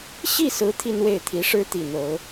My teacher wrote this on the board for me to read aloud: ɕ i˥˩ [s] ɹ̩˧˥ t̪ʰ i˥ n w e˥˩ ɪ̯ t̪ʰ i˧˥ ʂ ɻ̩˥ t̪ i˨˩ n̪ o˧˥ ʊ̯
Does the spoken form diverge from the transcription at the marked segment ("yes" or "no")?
no